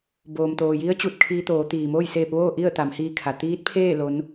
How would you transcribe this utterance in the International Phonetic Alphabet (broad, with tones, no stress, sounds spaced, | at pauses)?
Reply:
b oː˩ m t̪ oː˩ j i˧˥ ə̯ t͡ɕ u˧˩ t̚ kʰ iː˧ t̪ oː˩˧ t̪ iː˩ m oː˥˨ j s eː˧ p̚ ʋ oː˥˨ ʔ i˥˨ ə̯ t̪ a˩˧ m h iː˧ kʰ a˩ t̪ iː˧˥ t̚ pʰ eː˥˨ l o˧˥ n